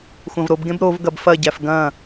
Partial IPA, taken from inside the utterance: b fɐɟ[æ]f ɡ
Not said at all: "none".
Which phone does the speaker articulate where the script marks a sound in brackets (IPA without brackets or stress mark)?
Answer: æ